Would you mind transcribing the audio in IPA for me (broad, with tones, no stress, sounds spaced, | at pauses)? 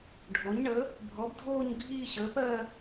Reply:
ɖʱ o˩˥ ɲ ɳ ə˩˥ | bʱ ɔ˩˥ b dʱ oː˥˧ ɲ ɡʱ iː˥˧ ɕ əː˩˥ p ɜ˥˧